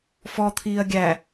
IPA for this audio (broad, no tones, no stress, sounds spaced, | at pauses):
f ɔ t̪ʰ iː ɐ̯ ɡʲ æ